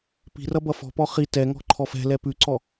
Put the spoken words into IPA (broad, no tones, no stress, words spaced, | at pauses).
pi̤rʌ bʌfɔ̤pɔ χi tɛŋɔ̤ ǃʰɔfɛ̤lɛ pʉǀɔ